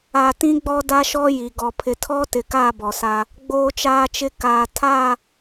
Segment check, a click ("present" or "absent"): absent